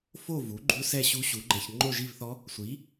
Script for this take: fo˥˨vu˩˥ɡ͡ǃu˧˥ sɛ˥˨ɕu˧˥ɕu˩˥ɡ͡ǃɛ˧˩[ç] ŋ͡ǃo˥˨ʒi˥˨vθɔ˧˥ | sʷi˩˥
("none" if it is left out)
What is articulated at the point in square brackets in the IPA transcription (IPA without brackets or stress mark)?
ç